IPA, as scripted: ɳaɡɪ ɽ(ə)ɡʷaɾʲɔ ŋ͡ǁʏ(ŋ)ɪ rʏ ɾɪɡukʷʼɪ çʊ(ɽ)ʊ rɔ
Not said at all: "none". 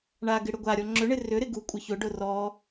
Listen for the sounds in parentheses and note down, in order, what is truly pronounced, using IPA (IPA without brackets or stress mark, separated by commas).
ʏ, ɳ, ɖ